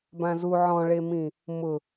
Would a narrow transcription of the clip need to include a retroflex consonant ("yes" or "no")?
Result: yes